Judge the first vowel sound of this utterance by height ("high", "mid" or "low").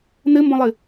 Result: mid